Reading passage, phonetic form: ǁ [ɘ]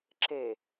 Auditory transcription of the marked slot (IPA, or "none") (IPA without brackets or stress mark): e